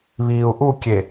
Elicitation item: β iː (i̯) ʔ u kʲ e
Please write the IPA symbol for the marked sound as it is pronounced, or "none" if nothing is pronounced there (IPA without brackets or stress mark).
u̯